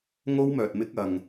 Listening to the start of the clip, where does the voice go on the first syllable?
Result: high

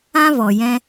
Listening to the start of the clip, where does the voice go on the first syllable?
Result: high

